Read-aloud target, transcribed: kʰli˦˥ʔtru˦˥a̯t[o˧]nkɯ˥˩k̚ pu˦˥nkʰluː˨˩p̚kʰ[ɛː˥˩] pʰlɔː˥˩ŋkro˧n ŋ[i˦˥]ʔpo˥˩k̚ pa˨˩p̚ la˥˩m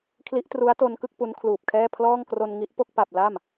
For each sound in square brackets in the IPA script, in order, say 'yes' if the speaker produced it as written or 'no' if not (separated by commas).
yes, yes, yes